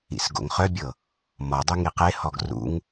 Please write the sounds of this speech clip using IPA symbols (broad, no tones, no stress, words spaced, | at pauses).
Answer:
ḭsɡo̰ŋχœbʲɤ | mɔdˤy ŋiqehɔɡ rṵŋ